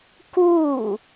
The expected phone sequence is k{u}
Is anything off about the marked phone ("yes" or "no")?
no